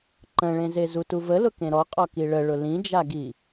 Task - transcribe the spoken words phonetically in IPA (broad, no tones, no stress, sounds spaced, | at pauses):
ǃ ə̃ ɭ ẽ z e z u t u v ə l ʊ k ẽ ɾ ɔ qʼ ɔ k i ɭ ə ɭ ʊ l ĩ d͡ʒ a ɡ i